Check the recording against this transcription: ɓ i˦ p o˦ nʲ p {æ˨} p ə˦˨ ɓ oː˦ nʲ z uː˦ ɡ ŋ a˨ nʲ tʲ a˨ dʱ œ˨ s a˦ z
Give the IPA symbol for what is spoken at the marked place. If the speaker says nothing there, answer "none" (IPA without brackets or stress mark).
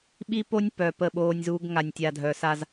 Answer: œ˨